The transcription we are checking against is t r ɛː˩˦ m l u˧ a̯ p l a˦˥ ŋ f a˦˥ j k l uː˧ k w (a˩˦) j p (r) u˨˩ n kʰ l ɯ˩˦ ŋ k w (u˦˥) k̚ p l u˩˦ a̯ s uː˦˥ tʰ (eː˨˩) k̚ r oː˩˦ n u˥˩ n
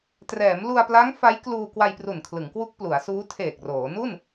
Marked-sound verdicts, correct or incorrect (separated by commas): incorrect, correct, correct, correct